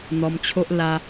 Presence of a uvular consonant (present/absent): absent